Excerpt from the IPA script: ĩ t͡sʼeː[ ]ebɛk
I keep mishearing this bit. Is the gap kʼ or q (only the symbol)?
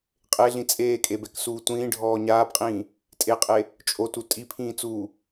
kʼ